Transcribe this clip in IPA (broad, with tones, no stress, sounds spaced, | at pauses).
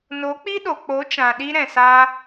n o˨˦ k͡p i˦ ɗ o˨ k͡p o˨˦ t͡ʃ ã˨ ɗ i˧ ɾ ɛ̃˨ s aː˧